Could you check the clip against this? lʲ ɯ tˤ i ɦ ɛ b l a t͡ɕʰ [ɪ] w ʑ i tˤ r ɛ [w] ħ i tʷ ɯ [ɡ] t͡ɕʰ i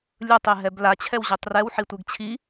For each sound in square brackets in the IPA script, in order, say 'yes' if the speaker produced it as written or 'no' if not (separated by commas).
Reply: no, yes, yes